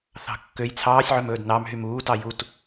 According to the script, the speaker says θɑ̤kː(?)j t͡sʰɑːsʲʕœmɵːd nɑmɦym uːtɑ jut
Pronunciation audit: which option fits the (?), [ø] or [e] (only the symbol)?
ø